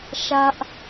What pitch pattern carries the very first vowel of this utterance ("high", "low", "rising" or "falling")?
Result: high